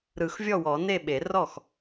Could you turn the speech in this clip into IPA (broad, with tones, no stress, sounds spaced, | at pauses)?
ɾ ɯ˨˩˦ x vʲ ɔ˥˩ w ɔ˨˩˦ n e˥˩ ɓ e˨˩˦ r ɔ˥˩ x